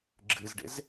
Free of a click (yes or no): no